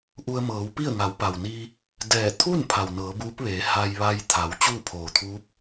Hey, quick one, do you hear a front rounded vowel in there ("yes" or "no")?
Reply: no